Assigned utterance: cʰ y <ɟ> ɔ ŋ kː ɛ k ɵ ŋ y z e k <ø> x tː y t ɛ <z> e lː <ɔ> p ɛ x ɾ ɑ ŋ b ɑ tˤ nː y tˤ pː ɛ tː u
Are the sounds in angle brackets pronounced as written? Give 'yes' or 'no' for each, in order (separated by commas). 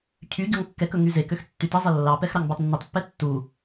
yes, yes, no, no